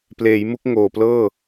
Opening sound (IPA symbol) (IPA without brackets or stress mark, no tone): p